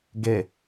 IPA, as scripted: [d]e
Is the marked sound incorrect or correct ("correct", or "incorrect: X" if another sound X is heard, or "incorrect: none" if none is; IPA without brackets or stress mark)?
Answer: incorrect: ɡ